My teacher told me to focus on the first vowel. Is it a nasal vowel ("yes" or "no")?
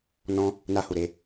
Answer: yes